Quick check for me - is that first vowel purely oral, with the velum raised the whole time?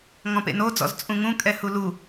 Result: no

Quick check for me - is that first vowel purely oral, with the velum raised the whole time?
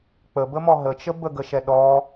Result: yes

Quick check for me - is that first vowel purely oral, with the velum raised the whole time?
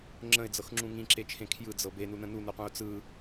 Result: no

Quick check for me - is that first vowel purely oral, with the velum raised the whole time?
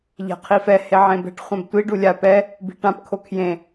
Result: yes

